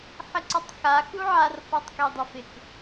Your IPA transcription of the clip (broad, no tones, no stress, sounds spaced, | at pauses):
ħ ɪ ǀ ɔ tˤ x a x u ʕ a r f ɔ tˤ k e dˤ ʊ f ɪ k